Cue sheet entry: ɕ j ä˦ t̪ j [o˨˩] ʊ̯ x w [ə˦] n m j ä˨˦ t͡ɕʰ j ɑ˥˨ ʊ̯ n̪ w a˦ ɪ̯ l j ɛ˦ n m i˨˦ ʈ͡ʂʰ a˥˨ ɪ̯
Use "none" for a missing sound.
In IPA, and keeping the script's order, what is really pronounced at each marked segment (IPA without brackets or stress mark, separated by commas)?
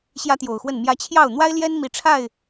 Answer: o˨˩, ə˥˨